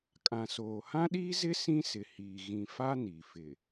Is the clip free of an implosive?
no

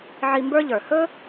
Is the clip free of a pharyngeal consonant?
no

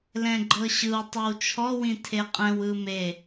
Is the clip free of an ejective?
no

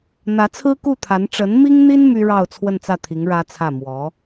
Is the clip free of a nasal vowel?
yes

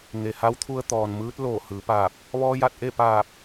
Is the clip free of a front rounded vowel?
yes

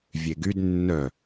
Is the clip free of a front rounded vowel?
no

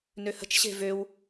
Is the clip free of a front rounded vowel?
no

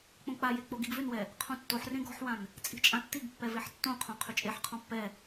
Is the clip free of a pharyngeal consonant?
no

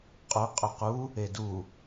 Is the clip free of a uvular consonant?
no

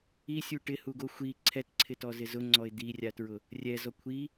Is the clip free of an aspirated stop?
no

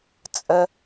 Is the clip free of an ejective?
no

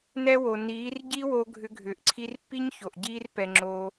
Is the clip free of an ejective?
yes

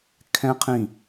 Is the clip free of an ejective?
yes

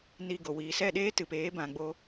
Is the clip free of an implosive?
no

